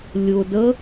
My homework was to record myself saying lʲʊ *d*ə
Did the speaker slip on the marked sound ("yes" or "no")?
no